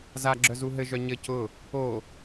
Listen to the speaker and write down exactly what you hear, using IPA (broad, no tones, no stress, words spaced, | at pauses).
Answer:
zaɡ͡ǁœzu ɦɘʒœ ɲɘ cʊ | o